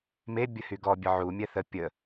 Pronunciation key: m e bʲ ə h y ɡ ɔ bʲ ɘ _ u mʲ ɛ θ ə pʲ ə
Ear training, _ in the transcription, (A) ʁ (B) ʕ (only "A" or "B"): B